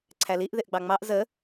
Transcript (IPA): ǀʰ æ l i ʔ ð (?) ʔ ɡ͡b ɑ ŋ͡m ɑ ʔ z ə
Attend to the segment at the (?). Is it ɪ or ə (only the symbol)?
ɪ